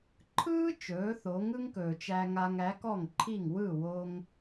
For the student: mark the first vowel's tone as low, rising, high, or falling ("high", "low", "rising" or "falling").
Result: high